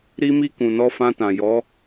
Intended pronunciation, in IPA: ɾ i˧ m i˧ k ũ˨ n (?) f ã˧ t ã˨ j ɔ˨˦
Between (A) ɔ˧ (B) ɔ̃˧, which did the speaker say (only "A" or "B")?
A